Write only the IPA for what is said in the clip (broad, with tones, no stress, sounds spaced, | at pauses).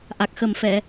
ʔ a˨˩ k̚ x ə˨˩ m f ɛ˨˩˨